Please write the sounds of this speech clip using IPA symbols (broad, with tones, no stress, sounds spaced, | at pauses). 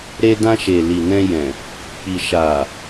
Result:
ɾ e˧ d ã˧ ʃ e˨ l i˨ n ɛ̃˧ j ɛ̃˨ | k͡p i˨ ʃ a˨